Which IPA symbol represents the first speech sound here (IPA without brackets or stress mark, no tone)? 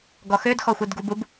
ɡ